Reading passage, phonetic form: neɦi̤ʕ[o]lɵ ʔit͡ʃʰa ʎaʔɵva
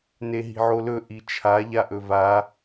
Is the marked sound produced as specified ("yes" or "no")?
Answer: yes